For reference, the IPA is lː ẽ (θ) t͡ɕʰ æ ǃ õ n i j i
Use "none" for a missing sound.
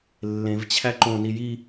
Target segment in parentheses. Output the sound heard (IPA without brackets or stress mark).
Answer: v